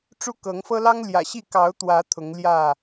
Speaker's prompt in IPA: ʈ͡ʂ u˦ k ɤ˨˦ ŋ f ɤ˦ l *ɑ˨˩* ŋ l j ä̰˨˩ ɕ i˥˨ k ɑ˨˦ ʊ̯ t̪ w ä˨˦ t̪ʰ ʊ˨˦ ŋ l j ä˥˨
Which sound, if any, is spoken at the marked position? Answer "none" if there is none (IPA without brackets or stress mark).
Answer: ɑ˦